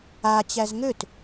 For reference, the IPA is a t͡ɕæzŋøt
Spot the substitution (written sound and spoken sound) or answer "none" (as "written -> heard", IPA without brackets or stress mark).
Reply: none